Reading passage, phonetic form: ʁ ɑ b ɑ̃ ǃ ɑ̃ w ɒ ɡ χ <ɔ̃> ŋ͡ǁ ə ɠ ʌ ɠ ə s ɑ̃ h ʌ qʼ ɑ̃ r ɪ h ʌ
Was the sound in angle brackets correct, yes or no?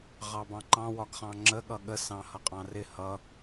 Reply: no